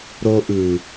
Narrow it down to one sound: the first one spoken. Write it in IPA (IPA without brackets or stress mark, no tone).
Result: ɾ